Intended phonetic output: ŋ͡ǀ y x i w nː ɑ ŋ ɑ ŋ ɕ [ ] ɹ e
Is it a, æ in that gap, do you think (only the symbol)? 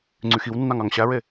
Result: æ